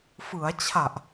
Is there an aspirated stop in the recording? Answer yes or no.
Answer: yes